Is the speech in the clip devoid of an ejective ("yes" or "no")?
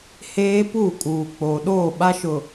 no